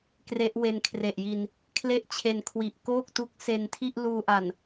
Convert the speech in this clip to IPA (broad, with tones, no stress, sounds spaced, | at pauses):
k r e˦˥ ʔ w e˧ n kʰ r e˨˩ ʔ j i˧ n | kʰ l e˥˩ ʔ t͡ɕʰ e˧ n kʰ w i˨˩ ʔ k oː˥˩ k̚ t u˦˥ k̚ s e˧ n tʰ i˥˩ ʔ l uː˧ ʔ a˨˩ n